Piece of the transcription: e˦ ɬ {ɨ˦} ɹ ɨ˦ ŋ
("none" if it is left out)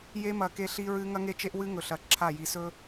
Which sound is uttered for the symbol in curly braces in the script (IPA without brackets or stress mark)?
i˦